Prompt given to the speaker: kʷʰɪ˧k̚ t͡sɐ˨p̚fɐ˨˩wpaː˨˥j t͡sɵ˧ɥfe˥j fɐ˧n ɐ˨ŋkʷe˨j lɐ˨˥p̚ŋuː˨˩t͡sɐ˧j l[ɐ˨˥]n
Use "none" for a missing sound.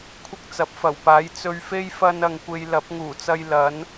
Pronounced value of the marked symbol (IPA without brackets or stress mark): ɐ˨˥